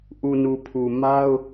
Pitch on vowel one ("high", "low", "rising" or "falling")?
low